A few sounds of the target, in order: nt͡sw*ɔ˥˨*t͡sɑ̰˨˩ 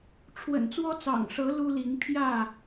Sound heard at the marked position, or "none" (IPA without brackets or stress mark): ɔ˦